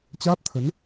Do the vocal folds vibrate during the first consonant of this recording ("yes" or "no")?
no